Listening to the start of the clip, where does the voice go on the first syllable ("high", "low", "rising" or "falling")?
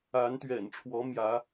rising